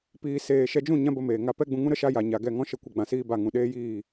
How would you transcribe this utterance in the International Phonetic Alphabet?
piː˨ seː˨ʃɛ˧d͡ʒũ˦˨ ɲã˦bə˧meː˨ ŋa˧ pɛ˦ɡ͡bũ˧ ŋũ˦ɾə˦ ʃa˦ja˨ ɲa˨ɡɛ˦˨ ŋɔ̃˦ʃə˦˨kʷə˧ɡ͡bã˨ siː˧ ba˦˨ŋũ˧ ɗeː˦jiː˦˨

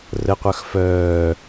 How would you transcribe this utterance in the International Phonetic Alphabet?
rəqʷœx fœː

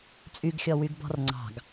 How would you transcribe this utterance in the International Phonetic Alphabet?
t͡sʼyɡxʲɔwyɡbɔ̤r ŋ͡ǀɑ̤ɡ

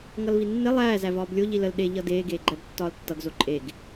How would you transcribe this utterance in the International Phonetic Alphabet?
ŋʌlvinːe lˠæː zævɒːblʲo ʎiləl ɗe ʎʌdeː ɡeːɡ͡ǃæbtːɒːltːʌɡ zoǃʼeɡ

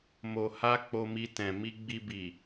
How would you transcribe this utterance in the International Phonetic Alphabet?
mo˨ha˧ k͡po˧mi˧ tɛ̃˨mi˧ɡ͡bi˧ bi˨

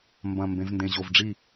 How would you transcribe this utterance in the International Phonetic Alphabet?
mbɐ̃˨˩ mbẽ˩˧vndẽ˨˩ʑo˨˩vɖ͡ʐi˥˩

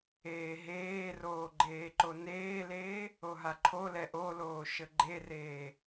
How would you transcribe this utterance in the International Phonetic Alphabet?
eːɦeːroː ɡ͡ǃeːǃoneːleː | oɦaǃʰolɛ ʔoloː ʃəɡ͡ǃereː

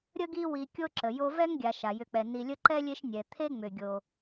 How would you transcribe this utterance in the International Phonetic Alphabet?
ɾʲə˥ɡi˦wi˨ kʲo˥ǁə˩jo˦ vɛ˥ŋɡʲa˨ ʃa˩jʏ˨k͡pɛ˩ ni˨lʲə˦ǃɛ˥lʲe˦ʃ nʲɛ˩t̪ʰe˦ŋ͡mʏ˩ ɡʲo˩

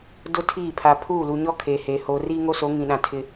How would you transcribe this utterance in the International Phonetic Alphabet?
dʊ˦tʰiː˦˨pʰa˨ pʰuː˦˨lu˨ɲɔ˦ kʰeː˨heː˨ hoː˨riː˦ŋo˦so˨˦ ŋĩ˨ɗã˨ tʰɪ˦

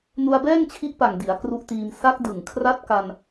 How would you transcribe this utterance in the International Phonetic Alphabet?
nu˧a̯bɛː˥˩ŋt͡ɕʰi˦˥ʔ pa˨˩ŋ di˩˦a̯ kru˦˥ʔtiː˧m sa˦˥k̚dɯ˨˩ŋkʰra˦˥t̚ ka˧n

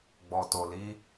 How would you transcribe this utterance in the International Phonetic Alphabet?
ɡ͡bɔ˨to˨ li˨˦

